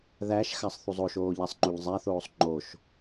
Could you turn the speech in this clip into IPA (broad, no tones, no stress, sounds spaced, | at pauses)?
ð æ ʃ x a sˤ θ u zˤ o ʃ oː ʎ a sˤ ŋ͡ǃ u ʎ zˤ æ θ oː sˤ ŋ͡ǃ o ʃ